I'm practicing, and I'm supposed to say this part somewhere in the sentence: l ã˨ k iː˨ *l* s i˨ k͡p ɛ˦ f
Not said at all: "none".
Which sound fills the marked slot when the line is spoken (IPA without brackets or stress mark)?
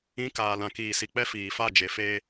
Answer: none